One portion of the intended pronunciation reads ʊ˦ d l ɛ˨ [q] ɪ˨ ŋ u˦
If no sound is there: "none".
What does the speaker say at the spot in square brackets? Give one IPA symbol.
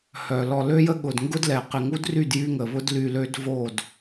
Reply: q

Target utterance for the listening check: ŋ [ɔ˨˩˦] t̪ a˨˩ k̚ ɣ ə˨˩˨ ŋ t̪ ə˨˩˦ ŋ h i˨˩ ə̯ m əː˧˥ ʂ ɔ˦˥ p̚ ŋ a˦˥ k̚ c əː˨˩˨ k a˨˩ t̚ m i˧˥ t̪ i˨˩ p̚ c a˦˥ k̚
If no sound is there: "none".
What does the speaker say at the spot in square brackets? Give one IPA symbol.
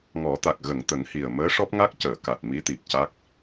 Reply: ɔ˨˩˦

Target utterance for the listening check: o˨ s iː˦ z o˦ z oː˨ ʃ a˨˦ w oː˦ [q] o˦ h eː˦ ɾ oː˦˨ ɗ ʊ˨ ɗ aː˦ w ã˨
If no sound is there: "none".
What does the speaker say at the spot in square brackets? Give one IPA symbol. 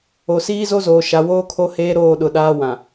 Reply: kʰ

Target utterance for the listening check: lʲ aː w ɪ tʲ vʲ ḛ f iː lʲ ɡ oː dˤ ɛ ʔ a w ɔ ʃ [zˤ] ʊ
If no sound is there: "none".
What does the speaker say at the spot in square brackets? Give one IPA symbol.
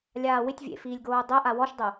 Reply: dˤ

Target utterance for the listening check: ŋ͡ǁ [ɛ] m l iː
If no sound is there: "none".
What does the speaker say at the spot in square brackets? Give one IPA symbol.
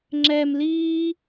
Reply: ɛ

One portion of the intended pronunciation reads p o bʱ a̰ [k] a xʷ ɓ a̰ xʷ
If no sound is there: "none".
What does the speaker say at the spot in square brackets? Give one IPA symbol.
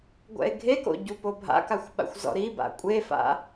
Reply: k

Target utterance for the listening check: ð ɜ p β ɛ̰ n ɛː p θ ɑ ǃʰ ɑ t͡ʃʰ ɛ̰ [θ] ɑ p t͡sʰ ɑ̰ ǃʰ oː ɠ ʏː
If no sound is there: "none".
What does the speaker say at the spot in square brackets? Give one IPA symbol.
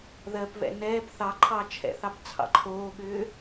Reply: θ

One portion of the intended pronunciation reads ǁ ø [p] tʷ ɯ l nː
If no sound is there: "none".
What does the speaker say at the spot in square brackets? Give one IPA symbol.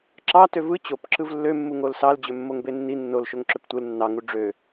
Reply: p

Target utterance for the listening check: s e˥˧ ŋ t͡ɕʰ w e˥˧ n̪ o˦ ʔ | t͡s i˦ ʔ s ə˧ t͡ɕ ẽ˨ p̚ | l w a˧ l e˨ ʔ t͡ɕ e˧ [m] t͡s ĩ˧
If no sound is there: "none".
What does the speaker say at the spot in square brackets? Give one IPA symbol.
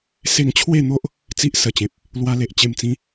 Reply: m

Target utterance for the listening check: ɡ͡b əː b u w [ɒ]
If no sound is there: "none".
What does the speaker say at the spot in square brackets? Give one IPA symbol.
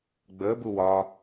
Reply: ɒ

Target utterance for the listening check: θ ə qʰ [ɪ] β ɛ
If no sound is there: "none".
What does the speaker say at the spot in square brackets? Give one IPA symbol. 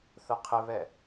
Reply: ɪ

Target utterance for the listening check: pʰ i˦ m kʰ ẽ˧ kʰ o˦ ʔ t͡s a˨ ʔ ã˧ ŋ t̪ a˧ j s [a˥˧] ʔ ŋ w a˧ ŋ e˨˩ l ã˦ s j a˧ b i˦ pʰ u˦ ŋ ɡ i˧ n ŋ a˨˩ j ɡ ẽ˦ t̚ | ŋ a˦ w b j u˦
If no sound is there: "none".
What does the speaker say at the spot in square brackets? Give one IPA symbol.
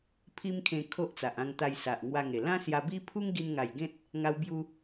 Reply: a˨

